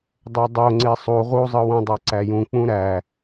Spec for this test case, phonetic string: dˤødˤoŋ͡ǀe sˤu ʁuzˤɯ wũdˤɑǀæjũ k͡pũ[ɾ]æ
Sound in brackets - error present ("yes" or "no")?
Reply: no